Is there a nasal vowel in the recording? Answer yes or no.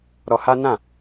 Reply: yes